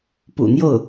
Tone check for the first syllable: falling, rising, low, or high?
low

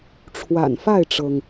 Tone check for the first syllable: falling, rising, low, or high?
low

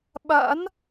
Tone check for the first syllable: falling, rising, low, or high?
rising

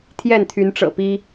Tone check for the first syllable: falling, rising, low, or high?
falling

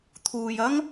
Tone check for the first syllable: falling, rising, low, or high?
low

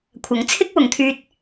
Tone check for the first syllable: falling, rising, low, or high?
rising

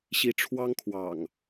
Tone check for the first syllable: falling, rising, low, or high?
rising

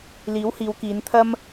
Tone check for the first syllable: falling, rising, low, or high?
rising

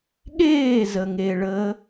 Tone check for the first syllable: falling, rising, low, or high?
falling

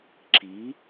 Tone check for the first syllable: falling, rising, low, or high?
rising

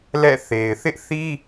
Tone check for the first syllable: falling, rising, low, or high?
falling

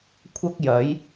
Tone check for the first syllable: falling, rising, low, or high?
high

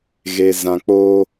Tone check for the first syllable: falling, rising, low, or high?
low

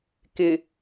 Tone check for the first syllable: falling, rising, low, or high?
low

